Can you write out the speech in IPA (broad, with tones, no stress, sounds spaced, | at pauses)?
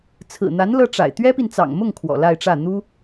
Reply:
t͡sʰ ɹ̩˨˩ n̪ a˧˥ n l ɤ˥ ʈ͡ʂ a̰˨˩ ɪ̯ t̪ ɥ ɛ˥ p i˨ n t͡s ɑ̰˨˩ ŋ m ʊ˥˩ ŋ kʰ w ɔ̰˨˩ l a˥˧ ɪ̯ ʈ͡ʂ ä˥˩ n̪ u˥